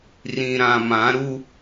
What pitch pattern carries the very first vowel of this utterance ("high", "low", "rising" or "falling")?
low